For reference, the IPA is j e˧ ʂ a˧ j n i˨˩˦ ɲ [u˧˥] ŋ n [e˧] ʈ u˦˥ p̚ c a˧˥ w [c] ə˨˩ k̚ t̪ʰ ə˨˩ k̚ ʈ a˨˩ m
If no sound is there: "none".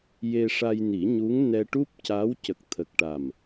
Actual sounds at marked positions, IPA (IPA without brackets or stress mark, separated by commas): u˧˥, ɛ˧, c